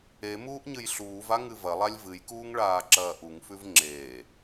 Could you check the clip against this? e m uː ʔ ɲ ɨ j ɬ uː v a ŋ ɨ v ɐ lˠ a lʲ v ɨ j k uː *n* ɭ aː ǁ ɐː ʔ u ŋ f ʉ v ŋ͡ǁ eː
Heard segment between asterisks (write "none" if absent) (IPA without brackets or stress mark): ŋ